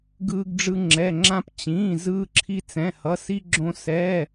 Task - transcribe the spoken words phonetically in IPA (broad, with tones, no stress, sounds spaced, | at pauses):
ɡ ɯː˧ ɡ ɖ͡ʐ ɯ˧ ŋ͡ǁ ɛ˩˧˩ ŋ͡ǁ ã˧ p t͡ɕ ĩː˩˧˩ z ɯː˧ ǁʰ i˧ t͡s ɛ̃˩˧˩ h ʌ˩˧˩ s i˧ ɡ͡ǁ õ˧ s ɛː˩˧˩